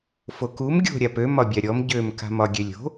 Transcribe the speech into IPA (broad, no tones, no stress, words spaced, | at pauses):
fokum ɡʲo̤ ɾʲapø mɒbʲaɾʲɔm ɟøm ka̤mɒɡʲølʲo̤